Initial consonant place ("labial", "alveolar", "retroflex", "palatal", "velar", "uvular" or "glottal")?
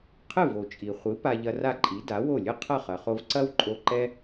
uvular